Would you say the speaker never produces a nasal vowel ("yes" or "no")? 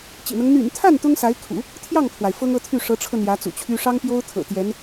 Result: yes